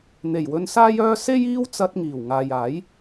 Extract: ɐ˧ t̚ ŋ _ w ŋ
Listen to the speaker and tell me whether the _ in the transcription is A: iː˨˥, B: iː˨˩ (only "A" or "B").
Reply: B